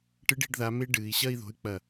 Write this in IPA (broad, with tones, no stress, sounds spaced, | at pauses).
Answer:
ʈ ɨ˨˥ ɖ i̤˩˧ ɖ ð a˩˧ m e˦˥ ɖ ɨː˩˧ i̯ ɕ ɐ˥˧ i̯ ð o̤˨˥ y̯ k͡p ɐ˧˩